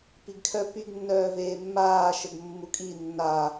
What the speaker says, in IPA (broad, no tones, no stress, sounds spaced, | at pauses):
p i ɡ kʰ œ p y ɡ nː œː v eː mː aː ʃ ə ɡ mː u kʼ i nː a